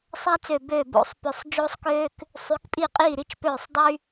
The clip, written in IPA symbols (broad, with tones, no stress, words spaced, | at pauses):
sˤæ˥t͡sø˧˩ bøː˥˩ bo̰˧˩sˤpø˧˩sˤ d͡ʒoː˥sˤkøː˥k | sˤy˨˦kpʼiː˥˩qʼiː˥˩ ɾi˥t͡ʃpøː˥˩sˤdˤy˥